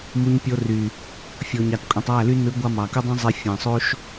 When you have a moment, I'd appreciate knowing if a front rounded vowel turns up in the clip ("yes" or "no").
yes